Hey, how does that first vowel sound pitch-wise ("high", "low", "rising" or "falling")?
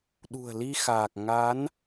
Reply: low